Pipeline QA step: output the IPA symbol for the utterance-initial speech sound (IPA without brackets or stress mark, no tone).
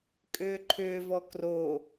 kʼ